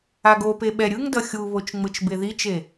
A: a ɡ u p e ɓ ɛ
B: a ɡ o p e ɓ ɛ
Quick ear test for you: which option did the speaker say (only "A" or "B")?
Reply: B